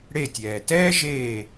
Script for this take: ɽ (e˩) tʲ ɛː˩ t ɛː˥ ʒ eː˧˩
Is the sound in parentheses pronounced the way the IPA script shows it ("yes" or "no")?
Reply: no